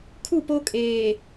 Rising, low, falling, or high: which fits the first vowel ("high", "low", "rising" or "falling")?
falling